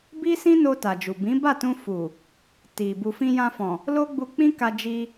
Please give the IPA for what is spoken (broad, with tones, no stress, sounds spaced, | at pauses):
b i˦ s ĩ˦ n o˧ t a˨ d͡ʒ u˨ b ĩ˨˦ b a˦˨ t ũ˧ f u˨ | t i˨ b u˨ f ĩ˧ j ã˧ f ɔ̃˨ | l o˦ ɡ͡b u˧ k͡p ĩ˦ k a˧ d͡ʒ i˧